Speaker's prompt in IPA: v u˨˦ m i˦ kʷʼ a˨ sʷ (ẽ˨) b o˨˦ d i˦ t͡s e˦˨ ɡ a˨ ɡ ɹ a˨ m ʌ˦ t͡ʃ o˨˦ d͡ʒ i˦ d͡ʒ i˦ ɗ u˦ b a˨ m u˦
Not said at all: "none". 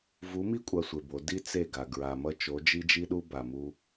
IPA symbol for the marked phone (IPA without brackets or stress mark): e˨